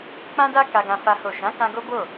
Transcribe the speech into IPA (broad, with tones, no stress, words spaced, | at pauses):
k͡pã˦da˦ ka˧ɡã˧ fa˦ho˦˨ ʃã˨˦kã˧ ɡo˦ bo˦˨